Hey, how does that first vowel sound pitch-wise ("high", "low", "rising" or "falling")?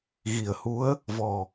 low